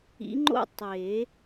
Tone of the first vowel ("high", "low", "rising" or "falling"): rising